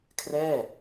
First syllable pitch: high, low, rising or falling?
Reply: falling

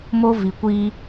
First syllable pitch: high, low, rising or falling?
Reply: high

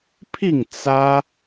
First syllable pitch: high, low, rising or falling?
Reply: falling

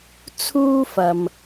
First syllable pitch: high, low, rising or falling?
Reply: high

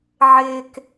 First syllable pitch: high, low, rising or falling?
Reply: low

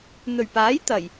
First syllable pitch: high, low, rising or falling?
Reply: low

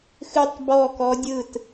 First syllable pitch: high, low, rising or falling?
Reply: falling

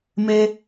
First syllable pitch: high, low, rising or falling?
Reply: high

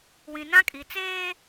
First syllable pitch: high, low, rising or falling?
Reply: low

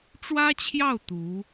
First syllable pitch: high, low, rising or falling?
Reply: high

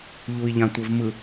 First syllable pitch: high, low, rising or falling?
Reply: low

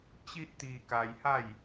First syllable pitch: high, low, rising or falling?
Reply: high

